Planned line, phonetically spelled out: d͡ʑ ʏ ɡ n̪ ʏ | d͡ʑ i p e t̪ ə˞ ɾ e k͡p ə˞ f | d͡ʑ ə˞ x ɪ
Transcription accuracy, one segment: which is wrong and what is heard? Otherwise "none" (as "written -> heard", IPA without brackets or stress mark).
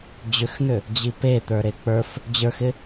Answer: ɡ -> x